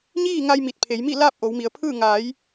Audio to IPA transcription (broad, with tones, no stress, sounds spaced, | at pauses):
ɲ iː˥˨ ŋ a˧ j m i˧˩ t̚ pʰ e˩˧ j m i˥˨ l aː˥˨ p̚ ʔ o˩˧ w m i˩˧ ə̯ pʰ ɯː˥˨ ŋ aː˩˧ j